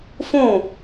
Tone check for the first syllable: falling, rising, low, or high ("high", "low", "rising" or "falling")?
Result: falling